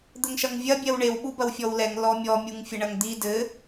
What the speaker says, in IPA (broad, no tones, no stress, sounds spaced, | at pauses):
d̪ ɘ ŋ ʃ ɐ ŋ vʲ ɐ bʲ ɛ w ɳ e w ɓ u b ɐ w fʲ ɔ w l ɛ ŋ l ɔ mʲ ɔ mʲ u ŋ fʲ ɘ ɳ ɐ ŋ d̪ i d ɘ